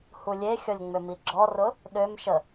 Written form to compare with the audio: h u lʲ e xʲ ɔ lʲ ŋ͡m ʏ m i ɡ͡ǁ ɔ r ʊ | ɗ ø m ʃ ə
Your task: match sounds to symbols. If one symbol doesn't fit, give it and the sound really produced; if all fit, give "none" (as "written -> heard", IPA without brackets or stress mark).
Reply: none